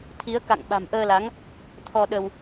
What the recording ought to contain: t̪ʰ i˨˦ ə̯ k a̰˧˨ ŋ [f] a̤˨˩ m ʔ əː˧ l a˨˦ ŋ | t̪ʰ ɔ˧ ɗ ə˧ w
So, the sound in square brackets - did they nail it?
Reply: no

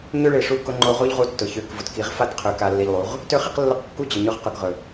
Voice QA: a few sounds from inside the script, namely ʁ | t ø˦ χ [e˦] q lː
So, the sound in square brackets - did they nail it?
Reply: no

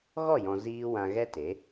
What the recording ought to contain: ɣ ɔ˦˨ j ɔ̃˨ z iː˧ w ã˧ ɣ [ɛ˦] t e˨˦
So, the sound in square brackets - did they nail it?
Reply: yes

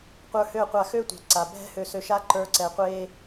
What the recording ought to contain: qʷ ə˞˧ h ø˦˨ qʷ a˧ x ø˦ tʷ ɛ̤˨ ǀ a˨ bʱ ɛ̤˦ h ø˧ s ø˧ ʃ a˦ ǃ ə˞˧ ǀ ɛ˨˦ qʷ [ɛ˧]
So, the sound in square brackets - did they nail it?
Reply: no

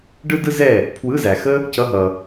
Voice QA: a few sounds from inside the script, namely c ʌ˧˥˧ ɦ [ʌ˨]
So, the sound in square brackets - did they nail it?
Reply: yes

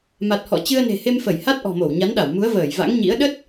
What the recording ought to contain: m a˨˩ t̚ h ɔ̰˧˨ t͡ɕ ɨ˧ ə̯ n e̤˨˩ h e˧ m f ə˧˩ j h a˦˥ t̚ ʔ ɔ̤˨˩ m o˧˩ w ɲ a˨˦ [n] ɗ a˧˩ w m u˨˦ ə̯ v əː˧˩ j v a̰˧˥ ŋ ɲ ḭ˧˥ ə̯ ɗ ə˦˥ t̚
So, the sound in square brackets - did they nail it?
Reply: yes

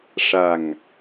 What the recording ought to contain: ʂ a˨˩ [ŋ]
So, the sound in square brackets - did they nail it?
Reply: yes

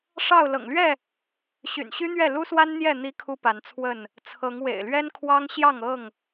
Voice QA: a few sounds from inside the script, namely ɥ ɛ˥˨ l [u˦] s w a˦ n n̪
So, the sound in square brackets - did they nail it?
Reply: yes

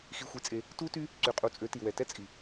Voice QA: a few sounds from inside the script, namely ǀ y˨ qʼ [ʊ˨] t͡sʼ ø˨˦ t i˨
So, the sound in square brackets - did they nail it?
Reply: no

